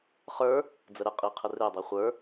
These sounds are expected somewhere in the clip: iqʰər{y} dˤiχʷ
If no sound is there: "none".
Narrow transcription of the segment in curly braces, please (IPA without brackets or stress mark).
e